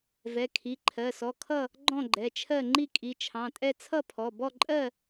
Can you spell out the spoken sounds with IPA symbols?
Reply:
v ɛ˩˧˩ kʰ i˩˧˩ ǃʰ ɜ˩˧˩ s ɔ˩˧˩ kʰ ʌ˥˨ | ɡ͡ǃ ɔ̃˥˨ ɡ͡ǃ ɛ˩˧˩ t͡ʃʰ ɜ˥˨ ŋ͡ǃ i˥˨ kʼ i˩˧˩ t͡ʃʰ ɑ̃˩˧˩ tʼ ɛ˥˨ t͡sʰ ʌ˥˨ pʰ ɔ˩˧˩ b ɔ˥˨ ǃʼ ɜ˥˨

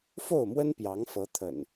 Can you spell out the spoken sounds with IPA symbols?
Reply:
f o˥˨ ʊ̯ m w ə˦ n p j ɑ˨˦ ŋ f ɤ˨˦ t̪ʰ ə̰˨˩ n

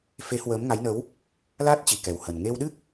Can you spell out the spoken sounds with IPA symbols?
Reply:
f e˨˦ h w əː˨˦ m ŋ a˨˦ j n ə˨˦ w | l aː˦˥ t̚ t͡ɕ i˨˩ k ɛ˨˩ w h ə˨˩ n ŋ e˧ w ɗ ɨ˦˥ k̚

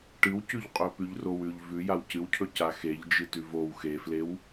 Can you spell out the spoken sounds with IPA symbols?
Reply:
ʈ ɨ w c ʉ ʎ qʼ ɵ p ʉ ʎ r o w ʉ ʎ v ʉ j a w c ɨ w cʰ ɵ c a x e ʎ d͡ʒ ɨ t ʉ v o w x e f l e w

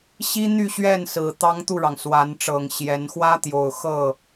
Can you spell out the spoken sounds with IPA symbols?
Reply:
ɕ i˥ n̪ y˥˧ ɕ ɥ ɛ˥˩ n s ɹ̩˨˩ t̪ ɑ˥ ŋ t̪ u˥˩ ɻ ɑ˩ ŋ s w a˧˥ n ʈ͡ʂ ɤ˨˩ ŋ ɕ j ɛ˧˥ n x w ä˥ t̪ j o˨˩ ʊ̯ x ɤ˥˩

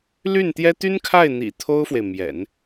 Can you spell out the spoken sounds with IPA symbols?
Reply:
l y˥˩ n t̪ j ɛ˥ t̪ y˥ n kʰ a˥˩ ɪ̯ n̪ ḭ˨˩ t̪ʰ o˥ ʊ̯ f w e˨ ɪ̯ m j ɛ̰˨˩˦ n

